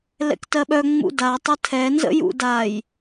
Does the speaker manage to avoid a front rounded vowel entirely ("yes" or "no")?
no